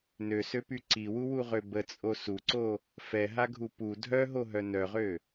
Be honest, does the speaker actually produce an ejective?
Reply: yes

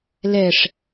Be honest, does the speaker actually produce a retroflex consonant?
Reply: yes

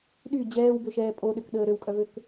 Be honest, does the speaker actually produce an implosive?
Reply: yes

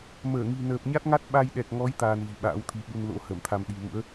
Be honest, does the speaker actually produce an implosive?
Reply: yes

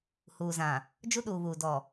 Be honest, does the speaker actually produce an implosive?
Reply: yes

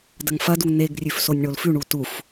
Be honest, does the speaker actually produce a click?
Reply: no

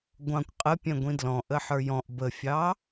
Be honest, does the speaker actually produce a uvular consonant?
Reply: yes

